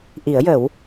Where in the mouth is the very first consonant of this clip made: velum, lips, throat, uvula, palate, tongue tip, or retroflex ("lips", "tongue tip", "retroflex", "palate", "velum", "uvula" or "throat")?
throat